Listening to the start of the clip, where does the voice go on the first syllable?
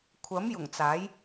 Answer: rising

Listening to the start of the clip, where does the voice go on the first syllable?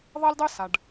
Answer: high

